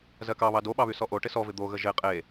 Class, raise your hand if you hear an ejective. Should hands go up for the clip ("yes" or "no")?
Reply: yes